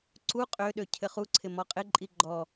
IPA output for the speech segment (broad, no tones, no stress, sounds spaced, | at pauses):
ǀ u qʼ ø ɗ ø cʰ ɘ χ u ǀʰ ɪ m ɔ qʼ ɪ ǃʼ i ɡ͡ǃ ɔ